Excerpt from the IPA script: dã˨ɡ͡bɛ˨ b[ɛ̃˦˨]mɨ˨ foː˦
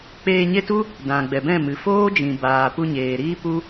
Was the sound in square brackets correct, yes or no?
yes